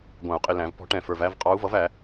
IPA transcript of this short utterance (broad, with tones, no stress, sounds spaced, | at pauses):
ɡʷ æ̃˨˩˦ u̯ qʼ ɪ˨ l æ̃˨˩˦ v p ɔ̤˧˥ ʈ ɛ̃˨ f ə˞˨ v æ˧˥˧ v qʼ ɑ˧˥ u̯ v ʌ˩˥ v æ˨˩˦